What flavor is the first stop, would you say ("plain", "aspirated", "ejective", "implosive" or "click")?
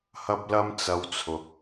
plain